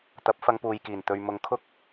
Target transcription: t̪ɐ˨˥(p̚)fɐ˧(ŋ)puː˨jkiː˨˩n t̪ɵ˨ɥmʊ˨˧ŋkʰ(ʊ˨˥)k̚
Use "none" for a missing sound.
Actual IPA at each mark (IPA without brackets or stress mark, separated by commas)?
p̚, ŋ, ʊ˥